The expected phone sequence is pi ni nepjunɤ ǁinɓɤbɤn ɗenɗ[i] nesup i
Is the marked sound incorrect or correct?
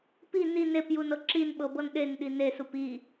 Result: correct